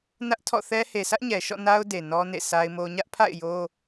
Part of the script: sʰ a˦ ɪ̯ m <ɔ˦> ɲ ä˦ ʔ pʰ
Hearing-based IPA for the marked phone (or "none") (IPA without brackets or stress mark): o˦